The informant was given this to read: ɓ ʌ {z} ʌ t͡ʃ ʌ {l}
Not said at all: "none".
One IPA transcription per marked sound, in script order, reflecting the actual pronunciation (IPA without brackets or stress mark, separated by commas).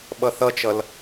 θ, l